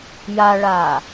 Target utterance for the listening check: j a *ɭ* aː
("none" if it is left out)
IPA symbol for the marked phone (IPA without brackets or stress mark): ɭ